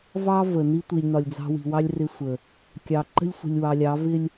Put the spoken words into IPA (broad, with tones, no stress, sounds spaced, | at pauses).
v ɑ˦ v ə˨ n i˦ tʷ i˨ lʲ n ɒ˨ lʲ d͡z ɑ̤˦ w i̤˨ w ɑ˦ lʲ r ɪ˦ sʷ ə˨ | kʲ ɑ˨ ǃ ə̤˦ lʲ sʷ ə̤˨ lʲ w ɑ˨ lʲ ɑ˨˦ v ɪ˦ lʲ